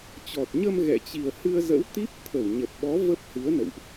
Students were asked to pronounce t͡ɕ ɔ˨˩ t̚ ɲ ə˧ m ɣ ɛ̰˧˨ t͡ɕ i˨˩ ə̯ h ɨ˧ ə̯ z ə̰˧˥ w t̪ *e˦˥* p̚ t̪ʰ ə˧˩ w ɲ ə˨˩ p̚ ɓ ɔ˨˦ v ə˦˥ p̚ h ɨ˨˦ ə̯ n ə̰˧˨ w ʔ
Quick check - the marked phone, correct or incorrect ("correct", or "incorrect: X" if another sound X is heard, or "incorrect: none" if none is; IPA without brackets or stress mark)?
incorrect: i˦˥